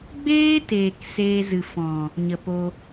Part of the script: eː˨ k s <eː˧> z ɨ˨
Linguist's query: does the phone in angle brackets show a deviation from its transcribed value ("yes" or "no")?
no